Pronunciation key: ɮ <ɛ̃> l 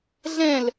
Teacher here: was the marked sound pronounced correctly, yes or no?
yes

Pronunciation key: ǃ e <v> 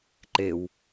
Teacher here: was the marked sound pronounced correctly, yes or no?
no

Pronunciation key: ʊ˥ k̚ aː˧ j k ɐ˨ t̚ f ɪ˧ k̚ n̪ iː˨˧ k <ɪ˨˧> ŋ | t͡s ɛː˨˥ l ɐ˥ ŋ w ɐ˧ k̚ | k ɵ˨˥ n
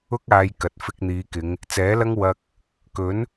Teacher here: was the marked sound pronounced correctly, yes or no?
yes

